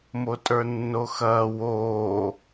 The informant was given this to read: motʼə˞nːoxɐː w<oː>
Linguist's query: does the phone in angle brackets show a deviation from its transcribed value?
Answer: no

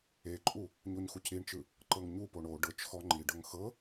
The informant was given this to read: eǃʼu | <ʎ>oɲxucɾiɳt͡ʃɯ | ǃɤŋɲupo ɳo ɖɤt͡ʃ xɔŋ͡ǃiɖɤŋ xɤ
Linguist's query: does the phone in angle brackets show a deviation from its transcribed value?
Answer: yes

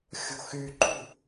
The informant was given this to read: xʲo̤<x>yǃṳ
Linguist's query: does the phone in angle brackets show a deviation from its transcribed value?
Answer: no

